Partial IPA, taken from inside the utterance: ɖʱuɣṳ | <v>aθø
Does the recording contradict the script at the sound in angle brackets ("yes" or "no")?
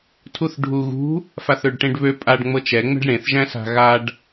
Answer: yes